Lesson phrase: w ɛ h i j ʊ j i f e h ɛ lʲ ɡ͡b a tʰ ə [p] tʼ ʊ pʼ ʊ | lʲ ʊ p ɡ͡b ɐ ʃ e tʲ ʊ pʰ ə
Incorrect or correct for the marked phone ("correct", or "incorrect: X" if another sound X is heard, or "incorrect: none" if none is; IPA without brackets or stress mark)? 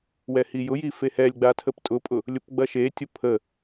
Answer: correct